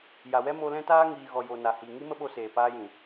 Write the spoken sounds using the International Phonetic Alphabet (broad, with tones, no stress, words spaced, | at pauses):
ja˨wɛ˧ mo˧ lɛ̃˧taː˧ŋiː˨ ɣɔ˨jo˨ na˨hi˨ ŋi˦mə˦ɓo˧seː˨ paː˧jĩ˨